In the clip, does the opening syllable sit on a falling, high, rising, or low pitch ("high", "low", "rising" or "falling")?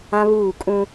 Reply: high